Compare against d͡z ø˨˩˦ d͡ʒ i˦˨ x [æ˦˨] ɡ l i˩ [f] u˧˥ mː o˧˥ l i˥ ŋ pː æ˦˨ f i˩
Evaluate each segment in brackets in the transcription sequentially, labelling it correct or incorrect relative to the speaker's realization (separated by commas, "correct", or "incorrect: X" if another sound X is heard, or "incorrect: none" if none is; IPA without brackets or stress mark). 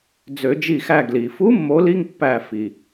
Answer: correct, correct